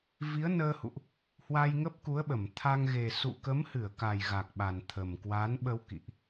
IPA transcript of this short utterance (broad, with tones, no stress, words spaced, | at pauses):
vi˨˦ə̯nəː˧hṵ˧˨ʔ | hwa˧jŋə˦˥p̚ku˨˦ə̯ɓə˧˩m t̪ʰa˧ŋ ɣe˨˩ sṵ˧˨ kə˨˦mhɨ˧˩ə̯ka˨˩j ɣa˨˩k̚ɓa˨˩nt̪ʰə˨˩mkwa˨˦n ɓə˧wkḭ˧˨ʔ